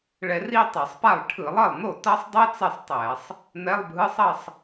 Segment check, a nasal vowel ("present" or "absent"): absent